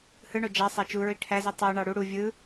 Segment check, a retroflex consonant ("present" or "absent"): present